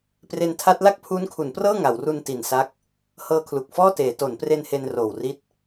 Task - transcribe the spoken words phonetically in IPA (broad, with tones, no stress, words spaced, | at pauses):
pre˧ntʰa˦˥t̚ la˥˩k̚pʰuː˦˥nkʰu˩˦nprɤː˥˩ ŋa˩˦wru˧n ti˨˩nsa˦˥k̚ | hɤː˧kʰlu˨˩k̚fɔː˥˩teː˩˦ to˩˦npre˧n he˧n roː˨˩wri˦˥t̚